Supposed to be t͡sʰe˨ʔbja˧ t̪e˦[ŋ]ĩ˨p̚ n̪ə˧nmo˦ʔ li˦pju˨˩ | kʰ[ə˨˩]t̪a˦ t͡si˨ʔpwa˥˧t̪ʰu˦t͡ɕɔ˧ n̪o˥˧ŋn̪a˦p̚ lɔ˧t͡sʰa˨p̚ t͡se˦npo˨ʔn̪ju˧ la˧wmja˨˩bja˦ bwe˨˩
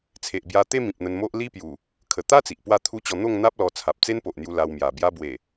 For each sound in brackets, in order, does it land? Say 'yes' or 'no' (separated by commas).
no, yes